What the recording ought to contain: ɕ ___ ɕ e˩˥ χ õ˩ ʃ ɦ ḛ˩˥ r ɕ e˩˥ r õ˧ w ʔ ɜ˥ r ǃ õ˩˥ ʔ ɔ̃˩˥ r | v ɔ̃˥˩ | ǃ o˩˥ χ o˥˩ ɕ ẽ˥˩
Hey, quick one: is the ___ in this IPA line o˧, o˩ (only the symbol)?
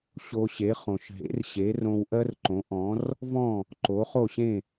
o˧